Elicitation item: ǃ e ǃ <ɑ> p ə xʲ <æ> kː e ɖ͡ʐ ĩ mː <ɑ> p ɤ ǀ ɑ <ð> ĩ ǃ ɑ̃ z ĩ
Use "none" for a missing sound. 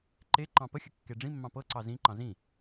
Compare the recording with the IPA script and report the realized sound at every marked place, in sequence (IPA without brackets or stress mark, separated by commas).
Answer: ɑ̃, ə, ɑ̃, z